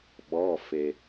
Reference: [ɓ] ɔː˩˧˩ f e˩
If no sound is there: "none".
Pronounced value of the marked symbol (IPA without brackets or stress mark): ɓ